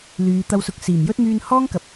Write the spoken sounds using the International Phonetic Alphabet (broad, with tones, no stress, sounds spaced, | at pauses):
l yː˨˧ t̪ ɐ˧ w s ʊ˨˥ k̚ s iː˨˩ m j ɵ˥ t̚ m yː˧ n h ɔː˥ ŋ k ɐ˨˥ p̚